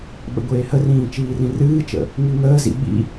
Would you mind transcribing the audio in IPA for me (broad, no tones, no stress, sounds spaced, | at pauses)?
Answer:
ɓ ə̰ ɡʷ eː h ə r ĩː t͡ʃ iː r ĩ r ɨː t͡ʃ ə̰ | ŋ i ŋ əː z ḭ ɓ ḭ